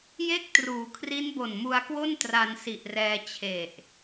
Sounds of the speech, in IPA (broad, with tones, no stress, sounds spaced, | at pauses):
j e˥˩ k̚ t r uː˩˦ kʰ r i˦˥ n b o˨˩ n m u˧ a̯ k w o˥˩ n t r a˧ n s i˨˩ ʔ r ɛː˧ t͡ɕʰ e˨˩ ʔ